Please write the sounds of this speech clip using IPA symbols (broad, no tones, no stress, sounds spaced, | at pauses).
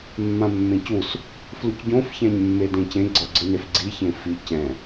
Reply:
mː ã mː ẽ c u s | f l u c ɟ õ f ç ã ɲ mː e d ẽ c ẽ ɡ͡ǀ ʌ ɡ͡ǀ ɯ n e f ɡ͡ǀ i ç ẽ f i c ɛ̃